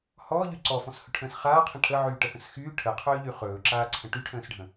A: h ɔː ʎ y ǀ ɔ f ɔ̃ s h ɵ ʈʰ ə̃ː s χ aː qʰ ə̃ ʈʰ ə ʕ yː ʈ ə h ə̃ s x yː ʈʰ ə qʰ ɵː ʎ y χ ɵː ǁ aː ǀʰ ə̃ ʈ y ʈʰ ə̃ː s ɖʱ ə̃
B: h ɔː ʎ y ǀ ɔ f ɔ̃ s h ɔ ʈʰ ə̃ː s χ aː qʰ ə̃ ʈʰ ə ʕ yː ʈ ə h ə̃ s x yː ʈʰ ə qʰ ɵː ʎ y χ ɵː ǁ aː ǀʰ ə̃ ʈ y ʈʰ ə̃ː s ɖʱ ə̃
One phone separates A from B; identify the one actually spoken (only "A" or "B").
A